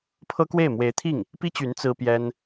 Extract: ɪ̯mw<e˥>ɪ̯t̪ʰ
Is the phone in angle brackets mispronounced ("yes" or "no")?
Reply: yes